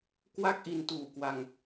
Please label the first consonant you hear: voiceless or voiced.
voiceless